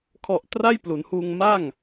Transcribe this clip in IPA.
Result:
kʰ ɔ˨˩ ʔ t r a˥˩ j p l u˩˦ n h uː˧ ŋ m a˥˩ ŋ

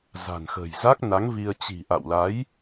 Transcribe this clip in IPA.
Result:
z a̤˨˩ n x ə̤˨˩ j z a˦˥ k̚ n a˨˦ ŋ v i˧ ə̯ t͡ɕ i̤˨˩ ʔ a̰˧˨ w l a˨˦ j

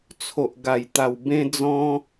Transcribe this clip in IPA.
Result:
t͡sʰ o˨ ʔ ɡ a˨˩ j t̪ a˨˩ w b ẽ˧ d͡z ɔ̃˧

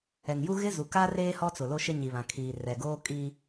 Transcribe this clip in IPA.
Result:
ɛ˨ ŋ j u˦ ɣ ɪ˦ z u˨ k a˦ r eː˦ h ɔ˦ t͡s ʊ˨ l o˦ ʃ ɪ˦ ɲ i˨ β ã˨ kʰ iː˨ r ɛ˨ ɡ oː˦ kʼ i˦

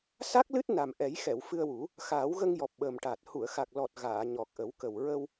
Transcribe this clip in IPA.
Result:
s a˦˥ k̚ l ɨ˦˥ t̚ n a˨˩ m ʔ ɛ˨˩˦ j x ɛ˨˩˨ w f ɨ˧ ə̯ w u˨˩˦ | x aː˨˩˦ w ɣ ə˧ ŋ j ɔ˨˩ p̚ ɓ əː˨˩ m ʈ a˨˩ t̚ h u˨˩˨ ə̯ x a˨˩ k̚ l ɔ˨˩ t̚ ɣ aː˨˩˨ ɲ ɔ˨˩ k̚ ʔ ə˨˩˦ w k ə˨˩ w ɹ ə˧ w

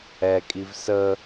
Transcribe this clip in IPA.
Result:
ɛ kʼ i v s ə

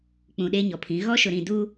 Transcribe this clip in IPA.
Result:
k͡p ũ˨ ɗ eː˦ ɲ ɔ˨ pʰ ĩ˨˦ ɣ ɔ˦ ʃ ʊ˨ ɾ ĩ˨ d u˦

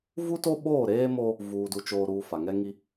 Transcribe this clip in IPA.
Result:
v u˦ t o˦ ɓ oː˦˨ ɾ eː˦ m o˦ | v uː˨ d u˨ t͡ʃ oː˨ ɾ uː˨ f a˨ ŋ ɛ˦ ŋ i˦

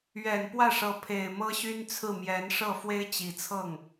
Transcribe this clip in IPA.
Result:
ɥ ɛ˨˩ n p w ä˥˩ ʂ ɤ˧˥ pʰ e˨˩ ɪ̯ m ɤ˥ ɕ y˥ n t͡sʰ ɹ̩˥˩ m j ɛ˧˥ n ʂ ɤ˥˩ f w e˥ ɪ̯ t͡ɕ i˨˩ t͡sʰ ɤ˥˩ ŋ

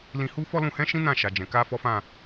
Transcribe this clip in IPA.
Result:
l ĩ˧ h u˦ f ɔ˦ l ũ˧ h ɛ̃˦ ʃ ĩ˦ n ã˦˨ ʃ a˨ d͡ʒ ɛ̃˨ k a˧ f ɔ˦ f ã˦˨

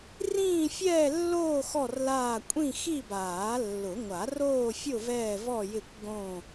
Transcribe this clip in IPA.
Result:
r ĩː˥˧ fʲ ɛː˥˧ lː oː˥˧ x ɔ˥˧ r l aː˥˧ kʷʼ ĩ˥˧ x i˥˧ b aː˨˩˦ lː ʊ˨˩˦ ŋʷ a˨˩˦ r oː˥˧ fʲ ʊ˥˧ v ɛː˥˧ v ɔ˥˧ j ɪ˥˧ kʷ ɡ õ˥˧

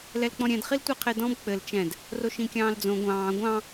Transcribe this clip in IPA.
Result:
l ɛ l k͡p ɔ̃ ɾʲ ɛ̃ d χ i l tʷ ɛ qʰ e d ɔ̃ b k͡p ɘ l t͡ʃ ɛ̃ d | r o ʃ ĩ kʲ ɑ̃ː l d͡z õ ɡʷ ɑ̃ː ɡʷ ɑ̃

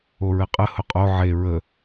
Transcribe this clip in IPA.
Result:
o ɹ ɘ qʼ ə h ʊ qʼ o ʕ e ɹ ə

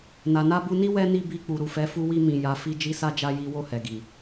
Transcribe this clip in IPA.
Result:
n a˨ n a˧ b u˧ n i˦ w ɛ˦ n i˦˨ b i˧ k͡p u˨ ɾ u˨ f ɛ˨˦ f u˧ w i˧ m ĩ˨ j a˨˦ f i˦ d͡ʒ i˧ s a˧ d͡ʒ a˧ j i˦ w o˦˨ h ɛ˨ ɡ i˨

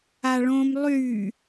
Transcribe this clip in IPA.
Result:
a ɭ õ m lˠ y

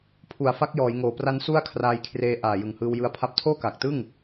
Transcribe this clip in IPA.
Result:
pʰ u˨˩ a̯ f a˦˥ k̚ j ɔː˩˦ j ŋ oː˨˩ p r a˦˥ n s u˥˩ a̯ kʰ r aː˧ j kʰ r eː˧ ʔ aː˨˩ j ɯ˨˩ ŋ h ɯː˧ w j ɯ˧ a̯ pʰ a˦˥ p̚ tʰ oː˥˩ k aː˨˩ k̚ t ɯ˥˩ ŋ

